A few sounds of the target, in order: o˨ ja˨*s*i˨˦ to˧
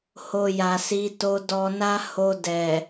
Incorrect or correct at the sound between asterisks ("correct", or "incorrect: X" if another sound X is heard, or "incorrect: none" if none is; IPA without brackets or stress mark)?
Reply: correct